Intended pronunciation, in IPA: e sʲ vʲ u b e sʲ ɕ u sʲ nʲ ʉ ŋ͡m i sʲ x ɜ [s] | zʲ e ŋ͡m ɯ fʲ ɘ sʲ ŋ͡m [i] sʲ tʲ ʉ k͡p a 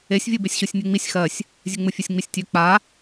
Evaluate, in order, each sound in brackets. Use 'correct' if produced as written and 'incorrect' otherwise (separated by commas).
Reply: incorrect, correct